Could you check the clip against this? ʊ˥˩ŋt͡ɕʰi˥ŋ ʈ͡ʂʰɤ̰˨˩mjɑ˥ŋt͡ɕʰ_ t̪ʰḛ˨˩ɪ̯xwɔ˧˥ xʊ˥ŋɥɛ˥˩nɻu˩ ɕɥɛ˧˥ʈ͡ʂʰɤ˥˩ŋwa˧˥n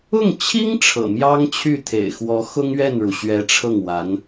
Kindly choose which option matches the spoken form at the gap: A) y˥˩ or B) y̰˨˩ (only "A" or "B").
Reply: A